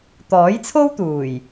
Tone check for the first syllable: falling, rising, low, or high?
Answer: rising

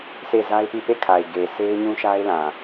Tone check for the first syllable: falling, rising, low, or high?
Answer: falling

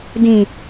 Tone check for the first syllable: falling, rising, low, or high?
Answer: low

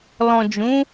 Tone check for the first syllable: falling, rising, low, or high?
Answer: low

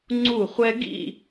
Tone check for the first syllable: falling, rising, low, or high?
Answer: falling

